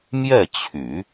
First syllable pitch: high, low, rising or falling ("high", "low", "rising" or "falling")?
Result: falling